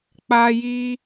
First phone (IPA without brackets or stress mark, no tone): k͡p